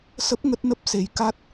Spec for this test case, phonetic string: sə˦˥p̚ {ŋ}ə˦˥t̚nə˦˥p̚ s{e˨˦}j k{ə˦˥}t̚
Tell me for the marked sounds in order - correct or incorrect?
correct, correct, incorrect: a˦˥

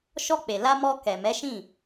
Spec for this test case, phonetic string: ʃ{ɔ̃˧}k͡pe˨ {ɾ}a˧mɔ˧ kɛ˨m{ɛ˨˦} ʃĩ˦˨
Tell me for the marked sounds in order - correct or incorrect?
incorrect: ɔ˧, incorrect: l, correct

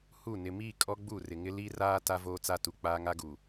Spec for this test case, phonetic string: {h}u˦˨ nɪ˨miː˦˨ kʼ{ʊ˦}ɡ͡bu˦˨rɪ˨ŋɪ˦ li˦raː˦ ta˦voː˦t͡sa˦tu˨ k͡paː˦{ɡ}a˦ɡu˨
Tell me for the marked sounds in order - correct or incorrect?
correct, incorrect: ɔ˦, incorrect: ŋ

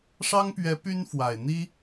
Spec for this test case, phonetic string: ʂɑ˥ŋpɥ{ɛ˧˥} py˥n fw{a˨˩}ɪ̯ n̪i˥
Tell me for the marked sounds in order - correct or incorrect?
correct, correct

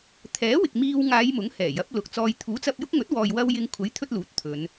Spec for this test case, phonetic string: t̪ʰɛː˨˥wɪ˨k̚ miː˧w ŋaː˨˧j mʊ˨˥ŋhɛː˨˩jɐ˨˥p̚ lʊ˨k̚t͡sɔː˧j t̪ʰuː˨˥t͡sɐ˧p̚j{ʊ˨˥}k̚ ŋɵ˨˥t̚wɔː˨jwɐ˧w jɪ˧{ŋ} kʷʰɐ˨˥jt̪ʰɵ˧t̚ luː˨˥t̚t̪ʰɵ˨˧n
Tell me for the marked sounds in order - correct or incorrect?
incorrect: ʊ˥, correct

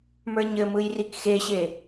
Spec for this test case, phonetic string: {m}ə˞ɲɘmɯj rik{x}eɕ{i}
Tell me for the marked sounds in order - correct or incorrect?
correct, correct, incorrect: e

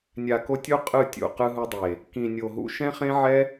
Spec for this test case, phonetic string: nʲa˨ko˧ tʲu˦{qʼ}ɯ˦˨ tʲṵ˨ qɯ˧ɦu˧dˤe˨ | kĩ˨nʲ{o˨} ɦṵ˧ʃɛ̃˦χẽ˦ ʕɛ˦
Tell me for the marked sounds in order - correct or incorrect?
correct, correct

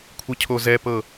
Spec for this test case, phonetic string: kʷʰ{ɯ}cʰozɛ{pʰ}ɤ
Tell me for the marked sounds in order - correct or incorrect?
correct, incorrect: p

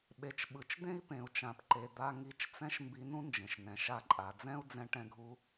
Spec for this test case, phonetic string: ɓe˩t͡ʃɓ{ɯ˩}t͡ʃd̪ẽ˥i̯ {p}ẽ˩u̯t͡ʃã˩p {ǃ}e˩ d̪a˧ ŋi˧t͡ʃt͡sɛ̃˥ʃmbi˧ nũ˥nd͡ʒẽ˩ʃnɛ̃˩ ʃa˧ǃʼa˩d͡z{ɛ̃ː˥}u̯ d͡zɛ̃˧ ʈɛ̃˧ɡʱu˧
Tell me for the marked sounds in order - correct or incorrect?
correct, correct, correct, incorrect: ɛ̃˥

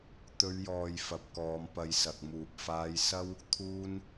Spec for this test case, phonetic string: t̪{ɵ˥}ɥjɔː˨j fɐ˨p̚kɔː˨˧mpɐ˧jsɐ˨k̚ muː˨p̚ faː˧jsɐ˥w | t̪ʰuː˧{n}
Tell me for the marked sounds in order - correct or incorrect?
incorrect: ɵ˨˧, correct

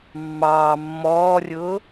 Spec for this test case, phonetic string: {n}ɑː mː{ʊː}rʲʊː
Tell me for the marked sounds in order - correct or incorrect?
incorrect: mː, incorrect: ɔː

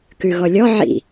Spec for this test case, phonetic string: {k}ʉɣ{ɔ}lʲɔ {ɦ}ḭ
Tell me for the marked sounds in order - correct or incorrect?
correct, correct, incorrect: ʕ

